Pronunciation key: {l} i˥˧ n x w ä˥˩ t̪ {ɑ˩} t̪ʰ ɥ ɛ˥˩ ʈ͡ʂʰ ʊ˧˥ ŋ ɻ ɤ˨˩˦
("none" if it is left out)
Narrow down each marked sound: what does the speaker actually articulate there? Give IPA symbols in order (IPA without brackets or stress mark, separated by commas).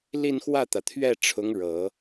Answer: l, ä˩